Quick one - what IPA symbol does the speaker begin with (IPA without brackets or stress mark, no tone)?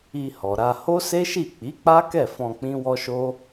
i